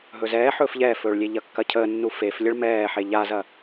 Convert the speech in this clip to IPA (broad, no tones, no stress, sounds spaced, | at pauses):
ɦ ɵ z ɛː ħ ɵː f ʎ ɛː f ɵː ɭ lʲ e ʎ ɐ kː ɐ cʰ əː nː u f e f lʲ ə ɭ m ɛː ħ e ʎ a z ɐ